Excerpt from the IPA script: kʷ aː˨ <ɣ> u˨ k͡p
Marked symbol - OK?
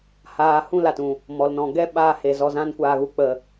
yes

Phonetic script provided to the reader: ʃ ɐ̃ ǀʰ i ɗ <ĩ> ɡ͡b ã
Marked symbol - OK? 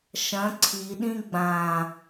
yes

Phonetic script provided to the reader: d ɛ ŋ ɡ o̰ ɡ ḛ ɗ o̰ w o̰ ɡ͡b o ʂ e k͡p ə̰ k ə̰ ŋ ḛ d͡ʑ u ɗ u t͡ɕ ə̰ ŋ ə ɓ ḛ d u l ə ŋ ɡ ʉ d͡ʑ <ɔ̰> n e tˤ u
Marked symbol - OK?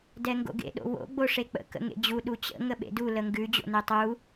no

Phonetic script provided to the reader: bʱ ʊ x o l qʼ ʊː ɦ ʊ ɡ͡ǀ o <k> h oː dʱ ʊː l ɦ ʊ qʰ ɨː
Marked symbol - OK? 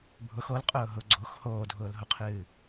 no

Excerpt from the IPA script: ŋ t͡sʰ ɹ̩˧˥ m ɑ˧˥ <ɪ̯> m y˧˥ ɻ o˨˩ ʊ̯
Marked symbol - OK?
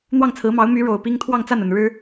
no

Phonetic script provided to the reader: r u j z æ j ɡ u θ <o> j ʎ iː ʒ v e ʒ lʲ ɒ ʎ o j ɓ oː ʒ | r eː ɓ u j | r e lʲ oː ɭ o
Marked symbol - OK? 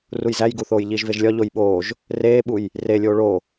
no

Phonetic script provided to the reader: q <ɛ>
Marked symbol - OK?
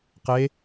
no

